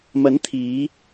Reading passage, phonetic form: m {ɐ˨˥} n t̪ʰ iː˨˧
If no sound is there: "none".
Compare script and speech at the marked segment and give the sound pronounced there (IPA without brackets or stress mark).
ɐ˨˥